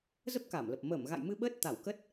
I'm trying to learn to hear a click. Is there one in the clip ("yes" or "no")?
no